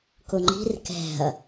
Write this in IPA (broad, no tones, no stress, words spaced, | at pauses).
kʊŋ͡ǃi̤r kɛ̤ɐ̯